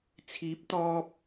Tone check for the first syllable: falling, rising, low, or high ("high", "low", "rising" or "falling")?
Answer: rising